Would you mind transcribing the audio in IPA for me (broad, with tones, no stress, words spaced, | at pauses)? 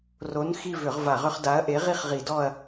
ro˨˥n xi˦˨vʏ˧˩˧ʁ va˧˩˧ʁʏ˦χ da˨˥ɐ̯ʔe˨˥ ʁi˦χʁi˧˩˧dɔ˦˨ɐ̯